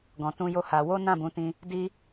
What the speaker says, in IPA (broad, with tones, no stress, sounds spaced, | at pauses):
ɡ ɔ̃˧ t ũ˦ j o˦ h a˧ w o˦ n ã˦˨ b ũ˨˦ t ĩ˧ | d i˦